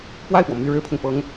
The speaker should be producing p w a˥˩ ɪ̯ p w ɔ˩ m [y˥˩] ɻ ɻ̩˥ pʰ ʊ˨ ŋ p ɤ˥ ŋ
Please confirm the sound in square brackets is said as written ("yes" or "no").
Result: yes